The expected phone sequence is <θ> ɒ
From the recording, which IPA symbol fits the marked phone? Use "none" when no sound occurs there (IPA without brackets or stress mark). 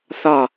θ